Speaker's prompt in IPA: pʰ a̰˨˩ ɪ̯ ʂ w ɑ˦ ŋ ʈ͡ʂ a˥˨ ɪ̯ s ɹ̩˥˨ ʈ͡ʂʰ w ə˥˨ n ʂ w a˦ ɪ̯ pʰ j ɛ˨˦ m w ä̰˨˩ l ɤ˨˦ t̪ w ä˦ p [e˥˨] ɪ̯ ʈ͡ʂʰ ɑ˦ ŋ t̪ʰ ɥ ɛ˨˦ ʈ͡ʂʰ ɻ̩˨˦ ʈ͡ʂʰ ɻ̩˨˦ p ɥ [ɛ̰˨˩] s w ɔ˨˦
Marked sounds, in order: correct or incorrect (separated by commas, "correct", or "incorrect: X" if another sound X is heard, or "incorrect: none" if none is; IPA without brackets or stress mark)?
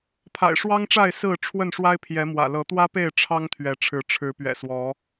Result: correct, correct